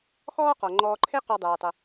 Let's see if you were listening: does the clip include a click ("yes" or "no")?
yes